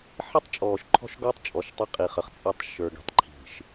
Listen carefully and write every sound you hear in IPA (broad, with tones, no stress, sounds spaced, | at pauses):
ħ i˦ tˤ t͡ʃʼ ɔː˨ ʃ ǃʰ ɔ̤˦ ʃ ɡ ɔ˦ tˤ t͡ʃʼ ɔ˨ ʃ tˤ ə˦ qʼ i˨ χ ə˨ χ t͡sʼ i˦ tˤ ʃ ə˞˨ ɡ i̤˨ tˤ ǃʰ i̤˨ ʃ